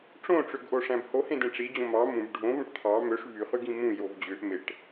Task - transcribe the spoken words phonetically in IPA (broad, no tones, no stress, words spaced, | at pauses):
ʈ͡ʂõʈ͡ʂøɡʔoʂæ̃b hohẽdẽ ʈ͡ʂid͡ʑõ mɑ mũb ɖʱõvõʈ t̪ʰɑ møʂ vyχyɡĩ mũjov d͡ʑøʔ meʈ